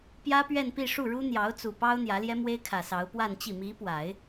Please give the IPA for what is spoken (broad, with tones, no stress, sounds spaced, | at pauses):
p j ä˥ p ɥ ɛ˥˧ n p i˥˧ ʂ u˥˩ ɻ u˥ n̪ j ɑ˧˥ ʊ̯ t͡s u˨˩ p ɑ˥ ʊ̯ n̪ j ä˧˥ l j ɛ˥ m w e˥ ɪ̯ kʰ ä˨˩ s ɑ˧˥ ʊ̯ p w a˥˧ n t͡ɕ i˥˩ m i˧˥ p w a˨˩˦ ɪ̯